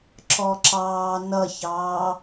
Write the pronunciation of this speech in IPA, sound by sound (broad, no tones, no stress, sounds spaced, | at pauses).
ǁ ɔ ǁ ɑː n ʌ ç ɑː